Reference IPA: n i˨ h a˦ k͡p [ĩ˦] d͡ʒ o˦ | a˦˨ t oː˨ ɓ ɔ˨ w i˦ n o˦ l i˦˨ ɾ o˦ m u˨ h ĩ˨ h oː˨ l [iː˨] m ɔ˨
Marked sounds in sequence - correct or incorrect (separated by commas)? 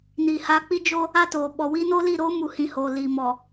incorrect, correct